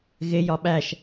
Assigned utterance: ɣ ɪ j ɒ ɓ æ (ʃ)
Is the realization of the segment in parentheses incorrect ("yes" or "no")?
no